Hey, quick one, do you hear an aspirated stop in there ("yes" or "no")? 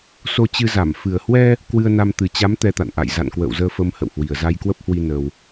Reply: no